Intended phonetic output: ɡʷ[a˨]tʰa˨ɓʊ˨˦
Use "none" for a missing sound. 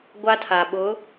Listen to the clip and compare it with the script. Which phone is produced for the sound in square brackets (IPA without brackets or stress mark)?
a˦